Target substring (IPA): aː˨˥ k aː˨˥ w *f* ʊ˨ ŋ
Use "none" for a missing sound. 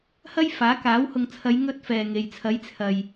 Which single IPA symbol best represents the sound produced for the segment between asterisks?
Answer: h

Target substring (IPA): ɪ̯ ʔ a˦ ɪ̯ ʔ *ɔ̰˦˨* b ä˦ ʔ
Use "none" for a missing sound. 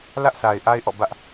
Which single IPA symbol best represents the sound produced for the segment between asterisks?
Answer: ɔ̰˦˨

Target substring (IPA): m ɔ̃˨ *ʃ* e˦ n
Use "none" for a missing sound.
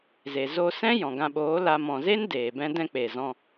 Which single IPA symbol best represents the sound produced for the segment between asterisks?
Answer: z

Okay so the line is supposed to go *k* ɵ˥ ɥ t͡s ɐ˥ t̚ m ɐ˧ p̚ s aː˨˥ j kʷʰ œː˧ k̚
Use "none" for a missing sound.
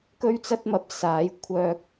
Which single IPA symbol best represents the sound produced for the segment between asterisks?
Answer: k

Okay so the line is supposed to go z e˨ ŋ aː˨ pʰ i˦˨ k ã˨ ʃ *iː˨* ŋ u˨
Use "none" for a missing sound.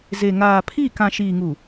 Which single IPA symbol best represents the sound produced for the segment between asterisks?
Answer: iː˨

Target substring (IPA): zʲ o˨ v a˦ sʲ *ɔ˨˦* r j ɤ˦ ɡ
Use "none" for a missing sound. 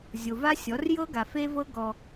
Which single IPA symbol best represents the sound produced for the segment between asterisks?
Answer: ɔ˨˦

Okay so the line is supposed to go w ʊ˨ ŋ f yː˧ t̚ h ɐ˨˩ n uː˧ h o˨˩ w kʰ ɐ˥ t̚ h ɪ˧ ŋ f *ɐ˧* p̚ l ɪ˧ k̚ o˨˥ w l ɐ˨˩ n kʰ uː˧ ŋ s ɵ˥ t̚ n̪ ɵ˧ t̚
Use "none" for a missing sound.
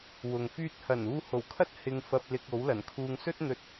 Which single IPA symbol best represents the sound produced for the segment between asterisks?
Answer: ɐ˧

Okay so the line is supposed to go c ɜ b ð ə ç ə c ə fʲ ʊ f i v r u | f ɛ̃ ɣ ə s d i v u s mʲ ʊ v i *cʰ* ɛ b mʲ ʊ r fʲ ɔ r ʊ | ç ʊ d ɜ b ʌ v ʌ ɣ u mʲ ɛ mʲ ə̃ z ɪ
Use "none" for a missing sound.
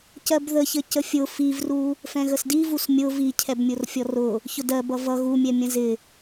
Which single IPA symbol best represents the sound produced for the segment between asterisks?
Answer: cʰ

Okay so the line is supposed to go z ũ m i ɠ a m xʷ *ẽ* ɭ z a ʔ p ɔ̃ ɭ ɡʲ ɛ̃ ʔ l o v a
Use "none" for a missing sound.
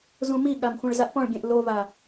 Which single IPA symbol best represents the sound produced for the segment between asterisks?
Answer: ẽ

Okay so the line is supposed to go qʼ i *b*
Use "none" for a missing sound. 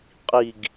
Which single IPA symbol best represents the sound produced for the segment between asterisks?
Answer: ɡ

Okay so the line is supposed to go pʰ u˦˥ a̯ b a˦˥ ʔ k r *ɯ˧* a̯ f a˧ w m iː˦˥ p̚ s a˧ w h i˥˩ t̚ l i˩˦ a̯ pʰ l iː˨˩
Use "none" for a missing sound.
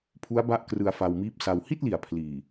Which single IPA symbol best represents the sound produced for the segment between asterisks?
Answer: ɯ˧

